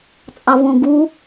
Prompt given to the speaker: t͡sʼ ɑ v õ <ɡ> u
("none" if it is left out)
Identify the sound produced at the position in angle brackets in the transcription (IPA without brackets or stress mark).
ɡ